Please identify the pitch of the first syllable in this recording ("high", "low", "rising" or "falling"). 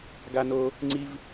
high